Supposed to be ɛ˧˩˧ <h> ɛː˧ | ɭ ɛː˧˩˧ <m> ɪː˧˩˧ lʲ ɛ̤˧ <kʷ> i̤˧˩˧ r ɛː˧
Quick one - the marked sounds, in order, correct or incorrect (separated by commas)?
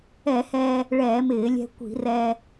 correct, correct, correct